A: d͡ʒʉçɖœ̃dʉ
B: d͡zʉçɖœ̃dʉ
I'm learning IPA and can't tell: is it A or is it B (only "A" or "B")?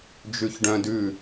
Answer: A